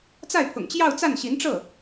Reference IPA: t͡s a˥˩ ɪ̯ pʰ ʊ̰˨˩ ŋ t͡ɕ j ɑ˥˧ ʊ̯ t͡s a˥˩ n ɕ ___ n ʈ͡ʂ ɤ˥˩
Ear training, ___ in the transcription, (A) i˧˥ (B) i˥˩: A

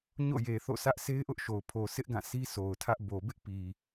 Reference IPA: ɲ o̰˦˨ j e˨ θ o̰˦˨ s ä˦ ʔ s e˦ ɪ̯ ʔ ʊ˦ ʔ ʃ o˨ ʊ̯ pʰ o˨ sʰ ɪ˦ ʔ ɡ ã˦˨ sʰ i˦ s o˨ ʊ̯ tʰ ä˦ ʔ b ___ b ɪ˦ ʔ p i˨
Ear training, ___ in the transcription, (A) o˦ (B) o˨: B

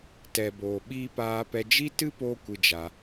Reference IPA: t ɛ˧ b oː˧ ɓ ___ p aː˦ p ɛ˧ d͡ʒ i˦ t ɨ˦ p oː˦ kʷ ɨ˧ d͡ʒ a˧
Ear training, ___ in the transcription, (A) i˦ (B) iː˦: B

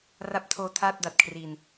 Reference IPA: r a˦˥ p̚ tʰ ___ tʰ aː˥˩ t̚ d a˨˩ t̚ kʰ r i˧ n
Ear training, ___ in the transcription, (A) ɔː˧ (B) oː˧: B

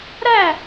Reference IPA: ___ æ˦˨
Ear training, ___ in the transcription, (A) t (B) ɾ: B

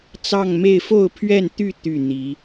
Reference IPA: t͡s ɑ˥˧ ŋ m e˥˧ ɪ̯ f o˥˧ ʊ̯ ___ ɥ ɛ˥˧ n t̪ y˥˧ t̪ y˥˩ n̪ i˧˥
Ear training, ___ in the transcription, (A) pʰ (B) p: A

